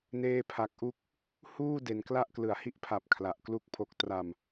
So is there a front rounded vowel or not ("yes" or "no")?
no